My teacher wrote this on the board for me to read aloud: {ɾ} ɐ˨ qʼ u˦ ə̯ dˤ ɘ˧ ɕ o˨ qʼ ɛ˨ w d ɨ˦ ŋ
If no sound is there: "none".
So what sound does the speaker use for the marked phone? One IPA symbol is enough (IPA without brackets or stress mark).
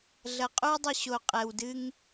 ɮ